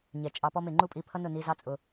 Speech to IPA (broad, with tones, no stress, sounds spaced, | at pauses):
ɲ ɛ˨ t͡ʃʼ ɑ˧ p ɔ˦ m ɪ˦˨ ŋ͡ǃ u˦ pʼ i˧ pʰ ʌ˦ n ʊ˦˨ n i˧ z ɑ˦ t͡sʼ ʊ˧